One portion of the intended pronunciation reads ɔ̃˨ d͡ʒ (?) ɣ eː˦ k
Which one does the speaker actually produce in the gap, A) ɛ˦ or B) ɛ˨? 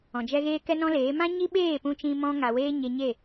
A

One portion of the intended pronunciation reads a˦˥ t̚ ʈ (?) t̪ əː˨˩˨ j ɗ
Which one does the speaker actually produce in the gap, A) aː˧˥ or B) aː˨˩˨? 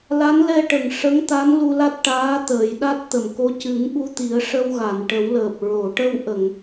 A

